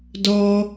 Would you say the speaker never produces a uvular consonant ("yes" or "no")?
yes